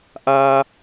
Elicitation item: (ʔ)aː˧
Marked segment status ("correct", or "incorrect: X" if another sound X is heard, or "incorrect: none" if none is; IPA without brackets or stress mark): correct